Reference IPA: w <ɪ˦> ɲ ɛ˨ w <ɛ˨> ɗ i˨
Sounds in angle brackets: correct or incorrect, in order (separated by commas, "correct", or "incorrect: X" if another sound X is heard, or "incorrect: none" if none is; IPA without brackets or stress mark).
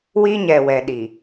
incorrect: i˦, correct